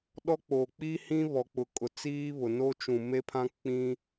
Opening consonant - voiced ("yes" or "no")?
yes